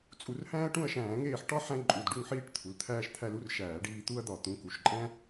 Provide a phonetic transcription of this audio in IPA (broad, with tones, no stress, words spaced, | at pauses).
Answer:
t͡sʼu˧˩˧rhæ̃ː˦ɐ̯ ʈũ˦˨ɐ̯ʃæ̃ː˧˩˧ŋeː˦˨ħ ʈɒ˦ ħæ̃˦ǃʼu˩˧˩dɖu˦˨ŋħiː˦ʈ t̪ʰu˩˧˩lt̪ʰæː˦ʃt̪ʰæ˦l u˦r ʃæː˧˩˧ɖiː˦˨ t̪u˦ɐ̯d̪ɒ˧˩˧ t̪ũ˩˧˩ku˩˧˩ʃǃʼæ̃˦